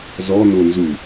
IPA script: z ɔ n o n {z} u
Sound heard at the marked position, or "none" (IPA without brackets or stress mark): z